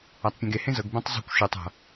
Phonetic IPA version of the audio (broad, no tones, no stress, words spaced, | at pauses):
atˤpʲɛ̃ɡe hẽzɤɡ bɛ̃tˤzˤṳkʷ ʃɤtˤ a̤